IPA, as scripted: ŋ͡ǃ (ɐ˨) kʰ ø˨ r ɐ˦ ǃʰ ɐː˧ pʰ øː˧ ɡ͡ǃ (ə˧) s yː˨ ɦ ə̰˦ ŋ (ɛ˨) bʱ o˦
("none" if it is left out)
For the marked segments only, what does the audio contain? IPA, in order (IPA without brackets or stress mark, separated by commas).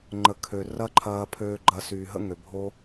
ə˨, ɐ˧, ø˨